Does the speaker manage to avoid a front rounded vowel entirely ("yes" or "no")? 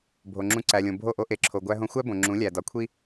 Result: yes